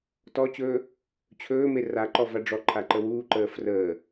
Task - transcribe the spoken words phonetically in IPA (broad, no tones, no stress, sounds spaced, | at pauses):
t ɔ t͡ɕ ɵː | t͡ɕʰ ɵː m e r a ǃ ɔ v a ɖ͡ʐ ɔ ǃʰ a ǃ ə w uː ǃ əː f r əː